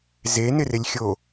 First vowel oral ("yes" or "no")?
yes